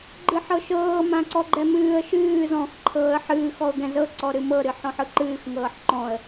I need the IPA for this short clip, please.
ɡ͡ǃ ɨ ħ ɤ ʃ ɤː m ã ǀ ɔ ɡ͡ǃ ɛ m ɨː ə̯ ʃ ɨː z ɔ̃ː x ǃʰ ɤː ə̯ ħ ɨː x ɔ ʊ̯ ɡ ɛ̃ z ɤ ǀ ɔ ɾ ɨ m ɤ ɾ ɨ ħ ɔ̃ ħ ɯ ǃ ɨː x ŋ ɤː ħ ǃ ɔ̃ ə̯

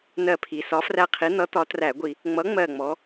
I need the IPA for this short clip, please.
n ɜ˧˩ pʰ i˩˧ s ɒ˨˥ f r æ˦ qʰ i˨˥ n̪ ʌ˨˥ t̪ ɒ˨˥ t r æ˧˩˧ ɡʷ i˧˩˧ | ŋ͡m ʌ˨˥ ŋ͡m ɜ˧˩ ŋ͡m ɔ˩˧

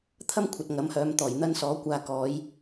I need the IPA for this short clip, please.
t̪ʰ ɐ˥ m kʷʰ ɐ˨ t̚ ŋ ɐ˨˥ m h œː˨˧ m t̪ ɔː˨˩ j n̪ ɐ˥ n s ɔː˨˥ kʷ aː˧ k ɔː˨˧ j

